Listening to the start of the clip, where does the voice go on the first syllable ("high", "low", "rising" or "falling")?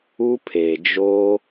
high